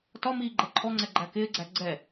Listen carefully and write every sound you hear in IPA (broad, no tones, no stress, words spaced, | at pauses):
tɒmiː ɡ͡ǃɛǃʰɔŋ͡ǀɛ ɡ͡ǃækɪːɡ͡ǀæ ɡ͡ǀɛ